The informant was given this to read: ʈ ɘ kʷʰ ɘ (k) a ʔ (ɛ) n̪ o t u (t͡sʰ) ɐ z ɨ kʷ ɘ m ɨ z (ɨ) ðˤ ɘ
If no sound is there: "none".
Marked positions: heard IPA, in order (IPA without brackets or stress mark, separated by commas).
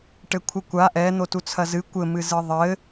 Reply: kʷ, ɛ, t͡sʰ, ɨ